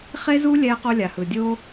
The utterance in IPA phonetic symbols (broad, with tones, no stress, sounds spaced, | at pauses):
χ e˥ z u˥ lʲ ɛː˥ q o˥ lʲ a˩ h ɯ˩ dʲ oː˥